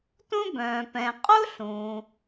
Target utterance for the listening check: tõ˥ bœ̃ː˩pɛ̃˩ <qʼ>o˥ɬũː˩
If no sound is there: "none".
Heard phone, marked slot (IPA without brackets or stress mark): qʼ